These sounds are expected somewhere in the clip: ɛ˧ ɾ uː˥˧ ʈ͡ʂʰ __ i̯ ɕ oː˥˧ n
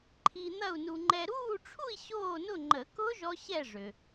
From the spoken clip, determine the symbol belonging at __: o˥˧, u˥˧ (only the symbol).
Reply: u˥˧